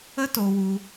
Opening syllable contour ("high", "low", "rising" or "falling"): high